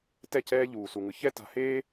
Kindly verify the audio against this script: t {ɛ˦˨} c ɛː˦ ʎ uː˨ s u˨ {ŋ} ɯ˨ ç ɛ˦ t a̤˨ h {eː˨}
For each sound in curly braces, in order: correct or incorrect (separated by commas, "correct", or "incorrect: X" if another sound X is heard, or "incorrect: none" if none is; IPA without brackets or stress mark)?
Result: correct, correct, incorrect: eː˦